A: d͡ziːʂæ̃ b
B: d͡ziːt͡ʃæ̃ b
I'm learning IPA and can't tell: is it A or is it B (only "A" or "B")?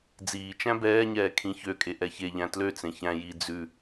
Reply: B